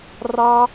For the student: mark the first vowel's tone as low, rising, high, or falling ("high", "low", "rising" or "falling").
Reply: high